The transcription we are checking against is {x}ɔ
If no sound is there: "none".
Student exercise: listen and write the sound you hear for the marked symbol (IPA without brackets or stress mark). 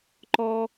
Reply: ǃ